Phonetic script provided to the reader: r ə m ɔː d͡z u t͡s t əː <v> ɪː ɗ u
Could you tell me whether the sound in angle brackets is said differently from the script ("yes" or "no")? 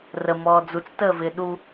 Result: no